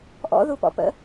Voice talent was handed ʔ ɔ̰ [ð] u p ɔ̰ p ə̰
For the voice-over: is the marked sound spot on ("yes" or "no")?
yes